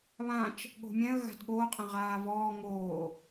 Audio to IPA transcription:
β ã t͡ʃ | ɠ o̤ mʲ ɛ̃ ə̯ ɣ a̤ d ɠ oː qʼ ɛ̃ ʁ aː v ɔː ŋ oː

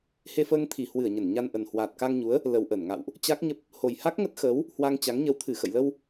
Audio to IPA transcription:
h e˧ f əː˧ ŋ t̪ʰ i˧˩ h w ɨ˧˩ ə̯ ɲ ə˧˩ n ɲ a˧ n ʔ ə˨˩ n h w aː˨˩ t̚ k a˧ ŋ ɲ u˨˦ ə̯ | l ə˨˩ w ʔ ə˧˩ n ŋ a̰˧˨ w ʔ | t͡ɕ a˦˥ k̚ ɲ ə˦˥ p̚ | h o˨˩ j h a˦˥ k̚ ŋ ə˦˥ t̚ x əː˨˦ w | h w a˧ ŋ t͡ɕ a˨˦ ŋ ɲ ə˨˦ w t̪ʰ ɨ˧˩ x ə̰˧˨ j l ə˧ w

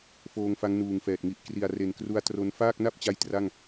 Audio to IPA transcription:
f oː˧ ŋ f a˦˥ ŋ n uː˨˩ ŋ f ɛː˨˩ t̚ ŋ i˨˩ ʔ k r i˨˩ a̯ r e˨˩ n k r u˦˥ a̯ t r o˧ n f aː˥˩ k̚ n a˥˩ p̚ t͡ɕ a˦˥ j t r a˥˩ ŋ

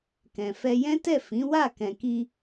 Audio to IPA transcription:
k ɛ̃˨ f ɛ˧ j ɛ̃˦ t ɛ˦˨ f ĩ˨˦ w a˦˨ k ɛ̃˨ k i˧

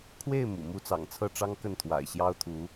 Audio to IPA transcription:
kʰ w e˥˩ ɪ̯ m ṵ˨˩ m u˥˩ t͡s ɑ̰˨˩ ŋ t͡sʰ ɤ˥˩ ʈ͡ʂ ɑ˥ ŋ k ə˥˩ n t̪ʰ w a̰˨˩ ɪ̯ ɕ j ɑ˥ ʊ̯ t̪ʰ u˧˥

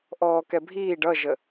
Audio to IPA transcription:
ʔ ɔː k ɛ bʱ iː ɖ ʌ ʒ ə

